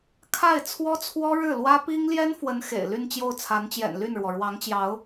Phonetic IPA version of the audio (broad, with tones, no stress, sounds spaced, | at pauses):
kʰ a˥˩ ɪ̯ t͡sʰ w ɔ˥ t͡sʰ w ɔ˥ ɻ ɻ̩˥˩ l w ä˥ p i˥ ŋ l j ɛ˥ n f w ə˧˥ n x ḛ˨˩ ɪ̯ l y˥˧ n t͡ɕ j o˥˩ ʊ̯ t͡sʰ a˧˥ n t͡ɕ j ɛ̰˨˩ n l y˥˩ n ɻ w ɔ˩ ɻ w ɑ˧˥ ŋ t͡ɕ j ɑ˧˥ ʊ̯